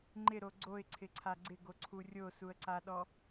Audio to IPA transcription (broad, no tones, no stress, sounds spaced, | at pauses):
ŋ͡ǃ ɪ ɾ o ɡ͡ǀ o ɪ̯ ǀʰ ɪ ǀʰ a ɡ͡ǀ ɪ ɡ o ǀʰ u rʲ o s u ə̯ ǀ a ɗ ɔ